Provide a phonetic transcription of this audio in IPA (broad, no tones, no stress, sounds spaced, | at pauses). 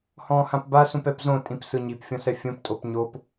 h ɔ̃ː h ã p b a s ũ p ɛ p z õ tʼ ĩ p s ɯ ɲ i p fʲ ɔ̃ s ɛ fʲ õ p tʼ o p ɲ o p